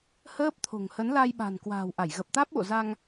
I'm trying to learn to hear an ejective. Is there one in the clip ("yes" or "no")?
no